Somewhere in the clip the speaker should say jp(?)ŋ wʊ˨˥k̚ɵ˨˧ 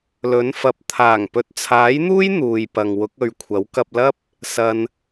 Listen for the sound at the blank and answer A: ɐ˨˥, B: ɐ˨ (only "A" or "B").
B